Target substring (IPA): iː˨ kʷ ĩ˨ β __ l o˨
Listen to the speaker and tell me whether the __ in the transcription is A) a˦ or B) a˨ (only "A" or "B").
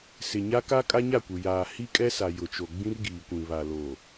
B